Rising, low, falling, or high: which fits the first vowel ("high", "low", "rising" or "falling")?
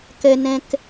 low